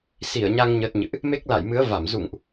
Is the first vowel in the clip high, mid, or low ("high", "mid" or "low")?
high